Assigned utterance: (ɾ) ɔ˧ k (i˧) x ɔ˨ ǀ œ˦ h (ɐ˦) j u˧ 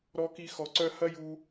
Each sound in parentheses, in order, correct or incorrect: correct, correct, correct

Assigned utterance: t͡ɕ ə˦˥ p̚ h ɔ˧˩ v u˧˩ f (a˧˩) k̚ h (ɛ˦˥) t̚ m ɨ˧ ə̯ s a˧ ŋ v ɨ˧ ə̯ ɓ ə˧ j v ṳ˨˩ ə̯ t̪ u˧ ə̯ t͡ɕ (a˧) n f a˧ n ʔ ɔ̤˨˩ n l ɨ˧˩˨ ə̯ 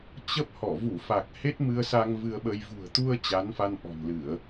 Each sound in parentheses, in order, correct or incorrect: incorrect, incorrect, incorrect

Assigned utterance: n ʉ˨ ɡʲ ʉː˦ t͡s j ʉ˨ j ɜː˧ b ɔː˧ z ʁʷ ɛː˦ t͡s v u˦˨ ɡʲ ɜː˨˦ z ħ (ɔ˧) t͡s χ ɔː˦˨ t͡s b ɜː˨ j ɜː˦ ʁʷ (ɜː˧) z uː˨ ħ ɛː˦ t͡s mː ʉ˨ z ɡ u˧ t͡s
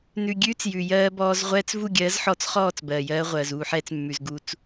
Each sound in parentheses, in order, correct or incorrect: correct, incorrect

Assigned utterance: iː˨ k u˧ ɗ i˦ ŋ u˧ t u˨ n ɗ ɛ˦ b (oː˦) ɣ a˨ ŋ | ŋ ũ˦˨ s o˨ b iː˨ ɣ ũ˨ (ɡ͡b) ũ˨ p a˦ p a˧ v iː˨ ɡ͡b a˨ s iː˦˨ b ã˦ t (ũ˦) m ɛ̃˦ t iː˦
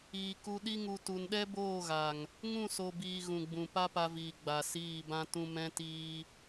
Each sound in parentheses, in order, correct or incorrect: incorrect, correct, correct

